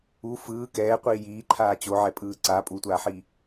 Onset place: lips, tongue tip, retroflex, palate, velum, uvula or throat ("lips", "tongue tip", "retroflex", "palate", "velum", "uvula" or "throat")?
lips